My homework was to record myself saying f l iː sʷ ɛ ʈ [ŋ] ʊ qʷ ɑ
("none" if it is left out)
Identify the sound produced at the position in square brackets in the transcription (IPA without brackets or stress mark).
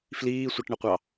ɳ